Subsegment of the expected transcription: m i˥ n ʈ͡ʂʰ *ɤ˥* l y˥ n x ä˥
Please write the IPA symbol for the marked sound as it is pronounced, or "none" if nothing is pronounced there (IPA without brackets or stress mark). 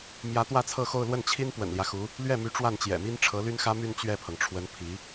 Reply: ɤ˧˥